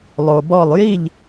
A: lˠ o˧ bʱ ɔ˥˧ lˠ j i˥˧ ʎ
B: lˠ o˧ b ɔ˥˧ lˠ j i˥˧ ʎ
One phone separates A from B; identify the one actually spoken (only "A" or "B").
B